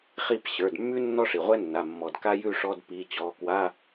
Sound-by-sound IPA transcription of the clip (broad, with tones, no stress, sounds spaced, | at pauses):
χ i˥˧ p ɕ ə˞˩˧˩ d mː ʉ˥ nː ɔ˥ ʂ i˩ ʁʷ ɛ˥ nː a˩˧˩ mː ɔ˩ d k a˥ j ʉ˥˧ ʂ ɔ˧˥˧ d p i˩˧˩ t͡ɕ ɔ˩˧˩ k w a˧˥˧